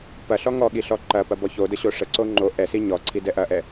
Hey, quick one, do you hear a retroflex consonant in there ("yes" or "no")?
yes